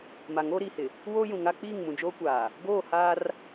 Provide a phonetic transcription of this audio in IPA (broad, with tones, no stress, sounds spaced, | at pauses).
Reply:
m a˨ ŋ oː˦ ɾ iː˨ h ɪ˨ | w oː˦ j ũ˨ ŋ a˦ k͡p iː˦˨ ŋ m ũ˨ d͡ʒ oː˦ kʷ aː˨ | ɡ oː˦˨ h aː˦ r